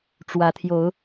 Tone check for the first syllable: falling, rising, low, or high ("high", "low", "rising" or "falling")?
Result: rising